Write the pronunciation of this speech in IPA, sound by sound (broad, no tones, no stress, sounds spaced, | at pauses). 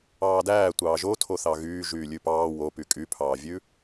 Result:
ɑː d æː tʷ ɑː ʒ o tʰ o θ ɑ ɣ yː ʒ yː lʲ ʉ p ɑː w o p y kʼ y pʰ ɑː vʲ ʉ